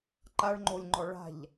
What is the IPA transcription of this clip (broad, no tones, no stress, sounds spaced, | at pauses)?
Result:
ǃ a ɭ ŋ͡ǃ o lʲ ŋ͡ǃ ɔ ɭ a̤ ʎ